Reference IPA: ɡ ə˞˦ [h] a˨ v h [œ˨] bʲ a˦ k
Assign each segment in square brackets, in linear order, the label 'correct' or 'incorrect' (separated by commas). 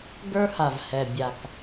correct, incorrect